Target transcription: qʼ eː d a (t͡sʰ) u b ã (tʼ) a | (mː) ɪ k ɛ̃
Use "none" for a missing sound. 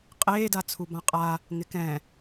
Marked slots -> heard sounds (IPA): t͡sʰ, qʼ, ŋ

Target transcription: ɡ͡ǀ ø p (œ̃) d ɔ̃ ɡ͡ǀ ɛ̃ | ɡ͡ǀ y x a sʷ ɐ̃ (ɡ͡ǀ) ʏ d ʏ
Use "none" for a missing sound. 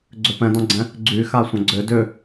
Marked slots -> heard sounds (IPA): ɛ̃, ɡ͡ǀ

